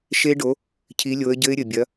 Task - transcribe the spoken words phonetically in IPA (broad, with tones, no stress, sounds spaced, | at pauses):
ʃ e˦˥ ɖ o˨˥ | cʰ i˨˥ lʲ o˨˥ ə̯ ɟ ɘ˦˥ ɪ̯ ɾʲ ɘ˨˩ bʲ ɐ˨˥